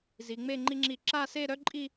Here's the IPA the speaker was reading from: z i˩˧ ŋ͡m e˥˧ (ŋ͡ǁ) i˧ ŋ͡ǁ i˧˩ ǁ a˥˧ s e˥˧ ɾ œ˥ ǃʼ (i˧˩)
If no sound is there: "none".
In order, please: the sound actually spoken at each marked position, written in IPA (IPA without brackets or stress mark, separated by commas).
ŋ͡ǃ, i˥˧